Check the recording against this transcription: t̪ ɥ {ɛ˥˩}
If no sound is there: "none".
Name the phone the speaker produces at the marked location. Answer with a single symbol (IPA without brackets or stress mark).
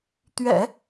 ɛ̰˨˩˦